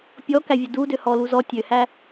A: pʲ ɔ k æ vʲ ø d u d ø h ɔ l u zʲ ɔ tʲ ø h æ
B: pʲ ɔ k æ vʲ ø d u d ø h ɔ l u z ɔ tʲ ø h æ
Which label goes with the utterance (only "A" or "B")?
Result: B